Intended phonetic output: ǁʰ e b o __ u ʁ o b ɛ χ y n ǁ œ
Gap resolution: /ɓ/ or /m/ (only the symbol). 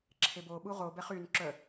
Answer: ɓ